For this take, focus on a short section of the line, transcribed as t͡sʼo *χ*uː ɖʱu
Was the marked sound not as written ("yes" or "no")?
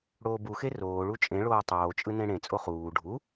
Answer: no